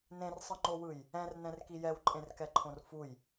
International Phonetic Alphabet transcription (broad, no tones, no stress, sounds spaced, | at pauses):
n ẽ r sˤ ɯ ŋ͡ǃ o w ɯ j | ɛ̃ r n ɛ̃ r k i j ɛ w ǃʼ ẽ r k ɛ ǃʰ õ r f u j